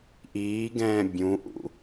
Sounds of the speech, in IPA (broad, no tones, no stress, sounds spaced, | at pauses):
ʔ iː ɡ ɛ̃ː bʲ ũ ʔ ṵ